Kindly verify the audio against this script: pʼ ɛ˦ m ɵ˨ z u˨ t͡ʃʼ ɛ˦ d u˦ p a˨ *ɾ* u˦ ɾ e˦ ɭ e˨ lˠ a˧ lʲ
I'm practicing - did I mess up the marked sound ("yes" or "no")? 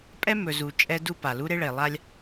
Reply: yes